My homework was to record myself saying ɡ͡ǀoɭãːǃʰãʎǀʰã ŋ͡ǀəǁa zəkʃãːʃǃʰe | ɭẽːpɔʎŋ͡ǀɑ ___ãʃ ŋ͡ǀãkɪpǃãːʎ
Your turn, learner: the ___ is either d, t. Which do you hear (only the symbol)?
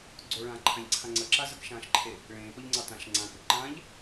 t